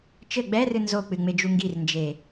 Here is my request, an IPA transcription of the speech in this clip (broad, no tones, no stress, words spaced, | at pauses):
t͡ʃɘ ɡ͡bɛrɨ nzok͡pɨŋ͡med͡ʒu ŋɡirnd͡ʒe